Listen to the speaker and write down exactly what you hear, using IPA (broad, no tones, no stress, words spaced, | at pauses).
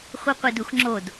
χʷiqʷeduxŋ͡ǁod